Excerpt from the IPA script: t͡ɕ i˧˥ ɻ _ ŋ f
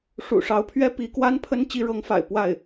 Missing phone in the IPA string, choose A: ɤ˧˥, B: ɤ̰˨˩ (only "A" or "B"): A